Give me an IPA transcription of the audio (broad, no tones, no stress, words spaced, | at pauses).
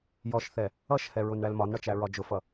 jɔʃθɛ | ʌʃhɛɹʊn ɳælmɒnɳʌt͡ʃæ ɹɒd͡ʒʊfʌ